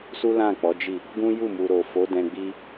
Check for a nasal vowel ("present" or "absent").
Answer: present